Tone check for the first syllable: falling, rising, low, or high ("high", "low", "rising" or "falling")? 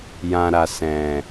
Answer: low